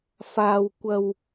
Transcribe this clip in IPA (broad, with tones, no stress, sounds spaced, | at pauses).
f aː˧ w kʷ ɐ˨ w